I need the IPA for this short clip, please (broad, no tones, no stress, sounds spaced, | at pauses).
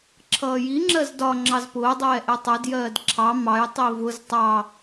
ǁʰ ʌː j i ŋ͡ǁ ɜ z d ɒ ŋ͡ǁ ɑ z p ʊː dˤ ɛː ʔ ɛ tˤ ɜ d j ɜː d ǁʰ ɑ m ɑ j tˤ i v ʊ z tˤ ɑ